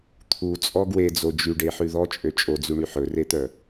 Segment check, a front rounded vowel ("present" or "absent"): present